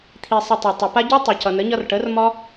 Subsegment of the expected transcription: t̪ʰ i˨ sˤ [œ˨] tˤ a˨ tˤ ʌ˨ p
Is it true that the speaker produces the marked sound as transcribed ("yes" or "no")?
no